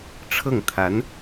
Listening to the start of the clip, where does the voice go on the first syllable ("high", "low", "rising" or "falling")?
falling